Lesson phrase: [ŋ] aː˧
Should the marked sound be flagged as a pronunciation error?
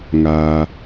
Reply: no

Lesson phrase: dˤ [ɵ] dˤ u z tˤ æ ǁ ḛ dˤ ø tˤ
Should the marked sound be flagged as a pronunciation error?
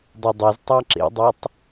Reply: no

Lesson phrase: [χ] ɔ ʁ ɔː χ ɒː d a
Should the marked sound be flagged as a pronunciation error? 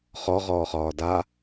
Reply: no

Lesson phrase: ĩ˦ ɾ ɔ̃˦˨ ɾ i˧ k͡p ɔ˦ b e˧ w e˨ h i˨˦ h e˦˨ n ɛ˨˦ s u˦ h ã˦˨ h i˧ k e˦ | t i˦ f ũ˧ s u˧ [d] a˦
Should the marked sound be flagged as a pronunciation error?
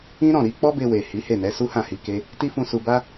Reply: yes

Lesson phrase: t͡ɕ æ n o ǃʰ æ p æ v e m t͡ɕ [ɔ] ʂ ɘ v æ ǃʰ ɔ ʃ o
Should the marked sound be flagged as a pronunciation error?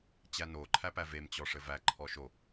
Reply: no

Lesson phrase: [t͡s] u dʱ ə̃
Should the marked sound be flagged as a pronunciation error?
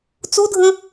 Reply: no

